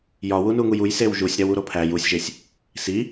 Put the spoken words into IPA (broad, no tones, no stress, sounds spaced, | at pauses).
j ɒ w u n u ŋ u j u j s e w ʒ u sʲ ɾ æ w u ɾ o pʰ æ j u sʲ ʒ e sʲ | s i